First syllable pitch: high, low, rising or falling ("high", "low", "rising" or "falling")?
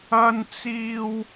high